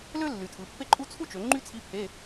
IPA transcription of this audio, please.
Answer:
l ø˥ lː y˩˧ tʰ ɯ˩˧ pː e˥ ǃʼ u˥ t͡sʰ u˥ t͡ʃ ø˩˧ ŋ͡ǃ y˥ t͡sʰ i˧˥˧ pʰ e˧˥˧

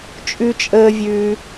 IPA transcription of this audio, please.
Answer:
t͡ʃʼ ʉ˦ t͡ʃʼ əː˦ vʲ ʉː˦

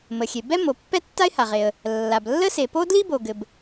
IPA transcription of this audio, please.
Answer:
m ə˩ xʲ e˩ b ɛ˥ m o˩ pː ɛ˥ tː a˥ ɪ̯ h a˩ ʁ e˩ ə̯ | lː a˩ b lː ə˥ s e˩ p o˥ d l i˥ b o˩ ɡ ɘ˩ b

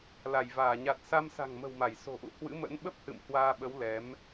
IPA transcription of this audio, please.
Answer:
l a˧˩ j v aː˧˩ ɲ a˨˩ t̚ s a˧ m s a̤˨˩ ŋ m ə̤˨˩ w m a˧˩ j s o̤˨˩ ʔ ṵ˧˨ h w ɨ̰˧˥ m ə̰˧˥ n ɓ ə˦˥ p̚ h ɨ̰˧˨ m h w aː˧ ɓ ə˨˦ w l ɛ˨˦ m

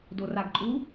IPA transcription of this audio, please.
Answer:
d o r a ɡ ǃʼ u

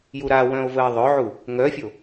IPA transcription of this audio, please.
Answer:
j u ɾ a w œ̃ o̯ v ə e̯ ðˤ œ ʕ u | ŋ œ fʲ o

